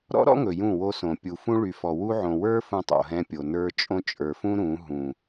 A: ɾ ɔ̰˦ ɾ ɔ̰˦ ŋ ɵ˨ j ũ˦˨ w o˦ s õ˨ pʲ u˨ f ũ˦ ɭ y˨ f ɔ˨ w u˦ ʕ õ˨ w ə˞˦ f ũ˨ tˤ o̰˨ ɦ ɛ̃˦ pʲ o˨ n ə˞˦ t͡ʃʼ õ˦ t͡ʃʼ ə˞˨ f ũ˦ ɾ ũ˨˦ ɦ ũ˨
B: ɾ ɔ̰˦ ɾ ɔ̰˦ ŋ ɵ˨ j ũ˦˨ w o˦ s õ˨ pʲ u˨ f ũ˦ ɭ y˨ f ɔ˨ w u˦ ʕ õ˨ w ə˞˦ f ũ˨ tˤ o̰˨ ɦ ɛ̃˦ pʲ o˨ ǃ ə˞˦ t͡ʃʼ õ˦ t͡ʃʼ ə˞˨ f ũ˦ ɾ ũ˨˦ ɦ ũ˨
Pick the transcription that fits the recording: A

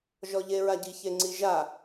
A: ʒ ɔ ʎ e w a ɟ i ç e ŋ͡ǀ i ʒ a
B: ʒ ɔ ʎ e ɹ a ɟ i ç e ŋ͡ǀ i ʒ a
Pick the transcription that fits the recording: B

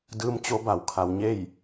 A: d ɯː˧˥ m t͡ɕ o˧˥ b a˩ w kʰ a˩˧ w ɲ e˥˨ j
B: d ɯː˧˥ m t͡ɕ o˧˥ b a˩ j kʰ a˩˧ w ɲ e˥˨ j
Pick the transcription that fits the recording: A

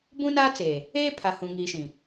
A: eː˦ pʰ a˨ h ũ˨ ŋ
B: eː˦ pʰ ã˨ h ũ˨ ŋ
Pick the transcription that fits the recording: A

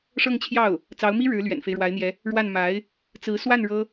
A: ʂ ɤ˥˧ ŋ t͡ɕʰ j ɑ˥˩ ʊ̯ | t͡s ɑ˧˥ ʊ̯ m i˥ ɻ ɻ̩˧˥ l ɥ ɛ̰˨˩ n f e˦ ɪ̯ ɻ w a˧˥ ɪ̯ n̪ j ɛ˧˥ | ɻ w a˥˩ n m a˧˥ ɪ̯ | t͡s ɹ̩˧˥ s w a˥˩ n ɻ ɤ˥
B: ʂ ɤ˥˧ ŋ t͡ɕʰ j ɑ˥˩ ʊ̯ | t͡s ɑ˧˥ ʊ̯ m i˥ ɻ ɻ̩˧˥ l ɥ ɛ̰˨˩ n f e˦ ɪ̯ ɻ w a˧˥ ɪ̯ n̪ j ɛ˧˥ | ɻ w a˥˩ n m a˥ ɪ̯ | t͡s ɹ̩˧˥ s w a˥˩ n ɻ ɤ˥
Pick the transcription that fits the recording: A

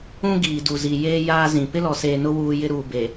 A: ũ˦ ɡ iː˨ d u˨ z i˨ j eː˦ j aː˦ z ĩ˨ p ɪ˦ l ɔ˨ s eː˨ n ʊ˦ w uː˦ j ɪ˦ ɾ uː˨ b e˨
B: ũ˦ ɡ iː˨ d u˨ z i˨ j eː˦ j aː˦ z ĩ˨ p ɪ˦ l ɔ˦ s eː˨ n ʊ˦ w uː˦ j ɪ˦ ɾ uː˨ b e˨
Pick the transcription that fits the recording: A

